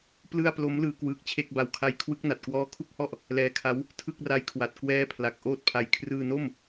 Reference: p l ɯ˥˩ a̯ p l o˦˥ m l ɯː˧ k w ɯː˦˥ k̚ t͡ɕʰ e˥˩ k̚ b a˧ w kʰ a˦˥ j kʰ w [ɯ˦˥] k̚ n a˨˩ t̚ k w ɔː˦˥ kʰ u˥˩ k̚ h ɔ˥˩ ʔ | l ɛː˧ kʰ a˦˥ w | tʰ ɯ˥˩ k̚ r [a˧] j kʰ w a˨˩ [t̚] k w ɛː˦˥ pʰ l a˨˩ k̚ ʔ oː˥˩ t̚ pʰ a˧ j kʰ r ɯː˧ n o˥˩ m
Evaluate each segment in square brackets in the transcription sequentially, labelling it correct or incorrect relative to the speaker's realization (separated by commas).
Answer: correct, incorrect, correct